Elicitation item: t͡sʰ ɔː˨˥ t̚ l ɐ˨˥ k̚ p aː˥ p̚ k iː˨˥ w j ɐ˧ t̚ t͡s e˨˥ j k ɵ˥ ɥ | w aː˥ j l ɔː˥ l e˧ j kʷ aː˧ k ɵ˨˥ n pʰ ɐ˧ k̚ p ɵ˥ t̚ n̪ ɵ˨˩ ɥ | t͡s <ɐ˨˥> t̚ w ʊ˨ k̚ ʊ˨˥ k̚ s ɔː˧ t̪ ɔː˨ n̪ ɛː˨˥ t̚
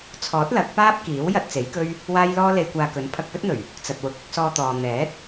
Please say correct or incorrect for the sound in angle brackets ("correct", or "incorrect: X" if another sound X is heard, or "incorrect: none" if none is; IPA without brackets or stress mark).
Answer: incorrect: ɐ˨